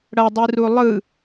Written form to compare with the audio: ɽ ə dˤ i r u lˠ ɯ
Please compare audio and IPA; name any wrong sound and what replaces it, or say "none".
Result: ə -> ʌ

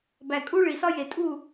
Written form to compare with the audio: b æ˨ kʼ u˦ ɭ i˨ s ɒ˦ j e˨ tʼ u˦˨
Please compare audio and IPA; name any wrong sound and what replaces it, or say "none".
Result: none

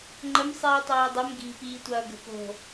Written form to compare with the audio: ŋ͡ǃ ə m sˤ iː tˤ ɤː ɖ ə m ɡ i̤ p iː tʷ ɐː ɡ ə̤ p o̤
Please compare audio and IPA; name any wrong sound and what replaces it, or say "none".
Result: ɖ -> dˤ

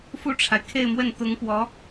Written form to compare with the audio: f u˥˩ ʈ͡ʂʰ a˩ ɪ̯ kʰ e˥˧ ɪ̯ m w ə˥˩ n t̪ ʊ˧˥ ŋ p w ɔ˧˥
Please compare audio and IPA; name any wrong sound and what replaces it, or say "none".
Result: none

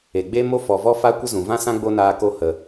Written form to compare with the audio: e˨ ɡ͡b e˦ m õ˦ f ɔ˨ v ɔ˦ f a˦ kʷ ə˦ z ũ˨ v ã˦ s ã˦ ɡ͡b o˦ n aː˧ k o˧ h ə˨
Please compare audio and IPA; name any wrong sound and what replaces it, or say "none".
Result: õ˦ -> o˦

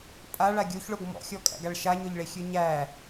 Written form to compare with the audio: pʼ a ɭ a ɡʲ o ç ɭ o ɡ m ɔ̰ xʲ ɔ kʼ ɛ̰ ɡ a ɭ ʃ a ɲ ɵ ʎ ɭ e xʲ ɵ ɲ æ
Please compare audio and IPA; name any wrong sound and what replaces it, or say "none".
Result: ɛ̰ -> æ̰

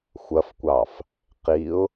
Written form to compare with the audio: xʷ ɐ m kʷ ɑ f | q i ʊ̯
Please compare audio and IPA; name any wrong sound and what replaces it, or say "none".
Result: m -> f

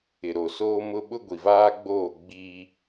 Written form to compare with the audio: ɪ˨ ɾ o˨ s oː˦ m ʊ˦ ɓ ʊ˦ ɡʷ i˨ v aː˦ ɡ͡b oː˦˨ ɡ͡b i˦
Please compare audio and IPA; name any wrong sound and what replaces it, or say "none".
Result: none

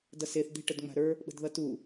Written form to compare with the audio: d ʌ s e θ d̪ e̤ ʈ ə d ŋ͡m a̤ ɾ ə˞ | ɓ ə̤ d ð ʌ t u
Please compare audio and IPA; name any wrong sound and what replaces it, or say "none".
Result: none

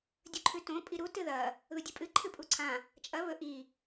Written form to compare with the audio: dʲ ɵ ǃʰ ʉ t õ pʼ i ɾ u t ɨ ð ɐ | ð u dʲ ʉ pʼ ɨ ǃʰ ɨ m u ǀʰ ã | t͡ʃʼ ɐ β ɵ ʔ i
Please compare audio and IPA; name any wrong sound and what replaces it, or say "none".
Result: m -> pʼ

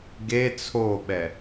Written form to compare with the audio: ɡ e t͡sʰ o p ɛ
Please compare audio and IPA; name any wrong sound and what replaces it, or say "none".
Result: p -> ɓ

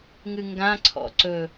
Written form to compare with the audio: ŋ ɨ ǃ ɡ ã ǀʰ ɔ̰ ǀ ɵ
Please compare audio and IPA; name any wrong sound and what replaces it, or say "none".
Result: ǃ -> ŋ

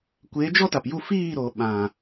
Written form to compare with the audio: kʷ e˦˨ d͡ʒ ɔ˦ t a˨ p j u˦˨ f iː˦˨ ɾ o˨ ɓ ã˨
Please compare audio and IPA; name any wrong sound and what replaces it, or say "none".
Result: e˦˨ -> e˨˦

